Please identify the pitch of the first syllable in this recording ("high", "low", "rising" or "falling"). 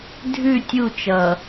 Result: falling